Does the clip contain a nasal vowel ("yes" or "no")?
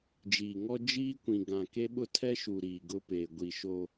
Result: yes